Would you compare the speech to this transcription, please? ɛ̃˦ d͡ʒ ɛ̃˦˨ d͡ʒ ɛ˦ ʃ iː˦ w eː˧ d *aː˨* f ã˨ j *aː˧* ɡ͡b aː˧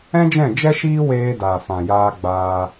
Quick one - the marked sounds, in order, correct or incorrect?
correct, correct

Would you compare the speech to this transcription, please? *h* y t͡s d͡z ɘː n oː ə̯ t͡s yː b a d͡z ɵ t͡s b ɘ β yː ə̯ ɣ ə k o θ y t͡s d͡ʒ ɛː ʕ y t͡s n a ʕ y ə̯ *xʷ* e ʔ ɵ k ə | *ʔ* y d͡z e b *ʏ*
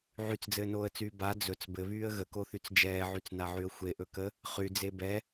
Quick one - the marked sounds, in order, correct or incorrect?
incorrect: ʕ, correct, incorrect: χ, incorrect: ɛ

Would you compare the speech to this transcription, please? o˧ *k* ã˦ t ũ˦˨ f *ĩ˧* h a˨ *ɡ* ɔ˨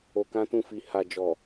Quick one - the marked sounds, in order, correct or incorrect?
correct, incorrect: i˧, incorrect: d͡ʒ

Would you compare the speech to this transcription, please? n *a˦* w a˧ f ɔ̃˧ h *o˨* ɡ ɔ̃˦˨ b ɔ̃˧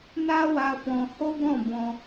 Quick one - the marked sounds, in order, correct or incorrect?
correct, incorrect: o˦

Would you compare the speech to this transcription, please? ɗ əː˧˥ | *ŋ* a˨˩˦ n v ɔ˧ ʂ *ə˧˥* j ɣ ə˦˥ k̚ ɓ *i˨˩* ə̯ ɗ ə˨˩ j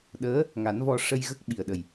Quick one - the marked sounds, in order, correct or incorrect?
correct, incorrect: ə˧, correct

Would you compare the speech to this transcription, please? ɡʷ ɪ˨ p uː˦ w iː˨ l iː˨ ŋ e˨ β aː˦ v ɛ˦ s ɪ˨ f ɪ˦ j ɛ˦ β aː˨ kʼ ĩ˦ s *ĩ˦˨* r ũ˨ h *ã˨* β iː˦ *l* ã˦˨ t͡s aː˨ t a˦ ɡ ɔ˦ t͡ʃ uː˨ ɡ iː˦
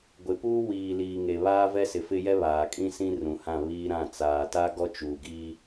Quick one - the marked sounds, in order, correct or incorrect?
incorrect: ĩ˦, incorrect: ã˦˨, incorrect: ɾ

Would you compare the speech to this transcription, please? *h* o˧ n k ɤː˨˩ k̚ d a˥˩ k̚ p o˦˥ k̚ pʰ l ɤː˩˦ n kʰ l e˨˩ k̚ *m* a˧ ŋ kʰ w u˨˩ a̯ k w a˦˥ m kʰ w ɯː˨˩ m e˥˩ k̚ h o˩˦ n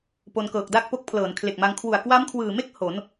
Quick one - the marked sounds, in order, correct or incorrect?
incorrect: p, correct

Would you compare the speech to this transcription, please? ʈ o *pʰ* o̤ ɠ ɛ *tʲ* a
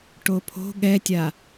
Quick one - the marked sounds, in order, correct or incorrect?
correct, correct

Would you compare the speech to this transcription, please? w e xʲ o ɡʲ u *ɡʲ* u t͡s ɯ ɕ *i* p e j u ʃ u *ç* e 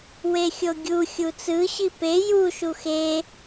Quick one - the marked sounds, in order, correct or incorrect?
incorrect: xʲ, correct, incorrect: x

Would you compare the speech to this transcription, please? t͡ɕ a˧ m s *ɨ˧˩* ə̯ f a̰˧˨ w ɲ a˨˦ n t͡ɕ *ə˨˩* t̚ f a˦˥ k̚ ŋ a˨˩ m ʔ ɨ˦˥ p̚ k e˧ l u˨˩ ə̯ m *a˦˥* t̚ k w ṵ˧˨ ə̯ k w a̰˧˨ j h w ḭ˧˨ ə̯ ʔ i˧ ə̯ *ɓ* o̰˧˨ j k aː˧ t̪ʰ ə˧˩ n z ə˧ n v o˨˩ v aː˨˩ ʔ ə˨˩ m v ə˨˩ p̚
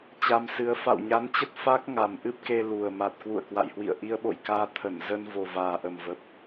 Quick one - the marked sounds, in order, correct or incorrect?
incorrect: ɨ˨˦, incorrect: ə˦˥, incorrect: a˨˩, correct

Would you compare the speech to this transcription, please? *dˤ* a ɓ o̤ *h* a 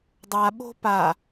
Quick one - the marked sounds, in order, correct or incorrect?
correct, incorrect: p

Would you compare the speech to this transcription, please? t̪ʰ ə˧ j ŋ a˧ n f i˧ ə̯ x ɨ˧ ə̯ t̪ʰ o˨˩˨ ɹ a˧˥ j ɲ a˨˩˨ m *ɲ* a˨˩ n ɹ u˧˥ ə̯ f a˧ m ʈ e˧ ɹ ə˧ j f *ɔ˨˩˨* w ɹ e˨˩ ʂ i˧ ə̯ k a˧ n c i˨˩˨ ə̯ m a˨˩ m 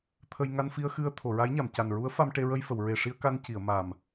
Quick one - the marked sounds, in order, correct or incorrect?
incorrect: c, incorrect: ə˨˩˨

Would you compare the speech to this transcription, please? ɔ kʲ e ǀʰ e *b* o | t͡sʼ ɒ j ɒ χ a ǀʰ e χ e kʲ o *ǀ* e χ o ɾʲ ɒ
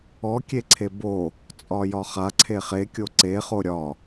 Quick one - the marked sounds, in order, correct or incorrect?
correct, correct

